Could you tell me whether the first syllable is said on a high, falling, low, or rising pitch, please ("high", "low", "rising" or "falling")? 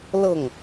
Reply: falling